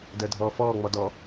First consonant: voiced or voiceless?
voiced